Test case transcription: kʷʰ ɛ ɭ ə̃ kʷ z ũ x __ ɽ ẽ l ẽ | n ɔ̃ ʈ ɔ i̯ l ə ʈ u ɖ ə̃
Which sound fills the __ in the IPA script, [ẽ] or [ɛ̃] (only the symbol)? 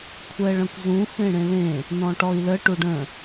ẽ